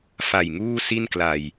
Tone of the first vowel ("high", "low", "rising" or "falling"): low